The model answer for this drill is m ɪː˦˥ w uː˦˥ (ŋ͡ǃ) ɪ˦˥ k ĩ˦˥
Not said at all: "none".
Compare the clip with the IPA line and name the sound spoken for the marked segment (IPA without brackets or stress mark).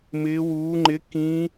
ŋ͡ǃ